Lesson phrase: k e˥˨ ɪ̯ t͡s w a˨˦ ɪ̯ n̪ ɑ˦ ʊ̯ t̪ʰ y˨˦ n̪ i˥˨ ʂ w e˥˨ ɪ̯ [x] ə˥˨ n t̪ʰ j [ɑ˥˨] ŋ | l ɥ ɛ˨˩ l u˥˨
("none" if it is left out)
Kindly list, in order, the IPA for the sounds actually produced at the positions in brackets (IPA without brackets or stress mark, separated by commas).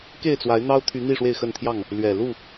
x, ɑ˥˨